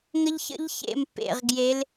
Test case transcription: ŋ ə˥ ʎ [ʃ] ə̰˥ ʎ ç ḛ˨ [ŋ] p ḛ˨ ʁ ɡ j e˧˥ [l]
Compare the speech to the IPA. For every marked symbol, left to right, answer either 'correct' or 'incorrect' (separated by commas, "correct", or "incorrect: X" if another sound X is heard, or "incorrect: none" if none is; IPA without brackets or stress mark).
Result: incorrect: ç, incorrect: m, correct